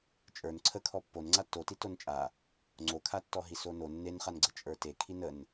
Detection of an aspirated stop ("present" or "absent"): present